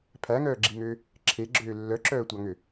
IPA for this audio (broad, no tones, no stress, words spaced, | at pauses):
pʰæŋœːɡ͡ǁiŋøː | ǁʰeɡ͡ǁøː lːœǁœːtʷɑŋø